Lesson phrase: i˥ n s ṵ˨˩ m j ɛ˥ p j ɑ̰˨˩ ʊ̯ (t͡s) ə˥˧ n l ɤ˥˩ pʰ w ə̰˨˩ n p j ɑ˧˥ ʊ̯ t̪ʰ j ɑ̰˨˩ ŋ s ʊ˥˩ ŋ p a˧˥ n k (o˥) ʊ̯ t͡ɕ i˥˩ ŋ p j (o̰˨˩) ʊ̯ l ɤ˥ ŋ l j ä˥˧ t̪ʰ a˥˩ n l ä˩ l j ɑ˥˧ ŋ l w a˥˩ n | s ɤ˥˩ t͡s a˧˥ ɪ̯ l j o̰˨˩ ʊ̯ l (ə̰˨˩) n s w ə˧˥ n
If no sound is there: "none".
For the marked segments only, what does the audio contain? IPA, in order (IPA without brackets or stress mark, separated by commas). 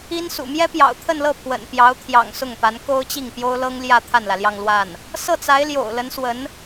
t̪ʰ, o˥, o˥, ə˧˥